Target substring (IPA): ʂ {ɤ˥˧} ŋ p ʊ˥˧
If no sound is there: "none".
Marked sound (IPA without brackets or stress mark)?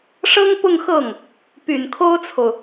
ɤ˥